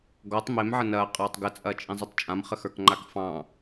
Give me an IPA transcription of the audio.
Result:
ɡ ɔ tˤ m e m ʕ ə n ɐː qʼ ɑː tˤ ɡ ə t͡sʼ ɐː t͡ʃʼ ĩ zˤ i tˤ t͡ʃʼ ã m χ ə x ə˞ k ŋ͡ǃ a k f ɑ̃

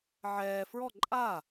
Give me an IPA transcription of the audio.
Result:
ʕ ɛː f ɹ ɔ ǃʼ a

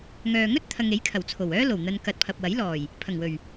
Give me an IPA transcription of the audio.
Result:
ŋ œː˨ ŋ ɵ˥ t̚ t̪ʰ ɐ˨ ŋ e˨˥ j kʰ ɐ˨˩ w t͡sʰ o˨˩ w œː˥ l o˨˩ w n̪ ɐ˨ n k ɐ˨ t̚ pʰ ɐ˨ p̚ w ɐ˨˥ j l ɔː˨˩ j | pʰ ɐ˨˩ ŋ w ɵ˨˩ ɥ

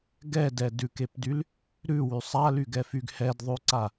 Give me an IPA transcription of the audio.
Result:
ɡ ɛ d ɛ d ʉ k e p d y l | ɾ ʉ w y sˤ a l y ɡ ɛ f y ɡ h ɛ d ðˤ ʉ ǀ a

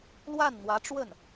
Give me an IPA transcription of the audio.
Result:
l w a˥˩ n n̪ w ä˧˥ ʈ͡ʂ w ə˥˩ n

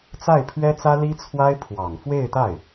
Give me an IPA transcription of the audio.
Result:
t͡s a˥˩ ɪ̯ pʰ ɥ ɛ˥ t͡s ä˥ l i˥ t͡sʰ w a˥ ɪ̯ pʰ w ɑ˨˩ ŋ f w e˥˧ ɪ̯ t̪ a˥˩ ɪ̯

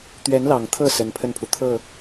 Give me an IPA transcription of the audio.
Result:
t̪ ɥ ɛ˧˥ n l ɑ˨˩ ŋ t̪ʰ ɤ˥˩ s ə˧˥ n pʰ ə˥˩ n pʰ u˩ t̪ʰ ɤ˥˩

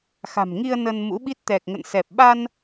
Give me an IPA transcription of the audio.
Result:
x a̤˨˩ m ŋ i˧ ə̯ n ə˧ n m ṵ˧˥ ɓ i˦˥ t̚ t̪ ɛ˨˩ k̚ ŋ ə̰˧˨ n s ɛ˨˩ p̚ ɓ a˧ n

